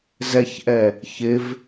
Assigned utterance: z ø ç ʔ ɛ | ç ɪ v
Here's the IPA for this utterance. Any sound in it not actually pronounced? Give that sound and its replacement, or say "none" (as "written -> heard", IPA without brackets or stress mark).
ø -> ɛ